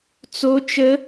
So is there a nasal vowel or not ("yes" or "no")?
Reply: no